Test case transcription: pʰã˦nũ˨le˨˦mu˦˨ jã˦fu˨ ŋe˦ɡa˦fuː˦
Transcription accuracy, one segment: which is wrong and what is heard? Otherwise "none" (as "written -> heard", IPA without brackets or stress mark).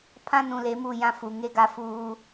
none